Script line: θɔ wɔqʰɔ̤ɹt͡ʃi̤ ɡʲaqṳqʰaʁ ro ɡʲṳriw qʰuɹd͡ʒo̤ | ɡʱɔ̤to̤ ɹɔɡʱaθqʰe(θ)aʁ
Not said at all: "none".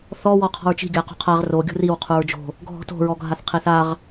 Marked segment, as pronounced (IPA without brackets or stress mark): θ